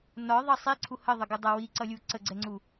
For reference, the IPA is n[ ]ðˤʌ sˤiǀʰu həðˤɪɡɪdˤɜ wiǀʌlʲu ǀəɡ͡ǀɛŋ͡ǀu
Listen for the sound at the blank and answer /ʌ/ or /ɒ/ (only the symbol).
ɒ